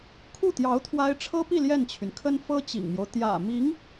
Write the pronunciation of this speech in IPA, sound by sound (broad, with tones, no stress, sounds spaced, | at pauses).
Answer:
kʰ u˥˩ t̪ j ɑ˧˥ ʊ̯ t̪ʰ w a˥ ɪ̯ ʈ͡ʂʰ ɤ˥ p i˥˧ l j ɛ˥˩ n t͡ɕʰ y˩ n kʰ ə˥ n f ɤ˥ t͡ɕ ḭ˨˩ ŋ m j o˦ ʊ̯ t̪ j ä̰˨˩ m i˧˥ ŋ